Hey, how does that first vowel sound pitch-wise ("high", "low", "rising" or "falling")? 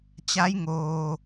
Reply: rising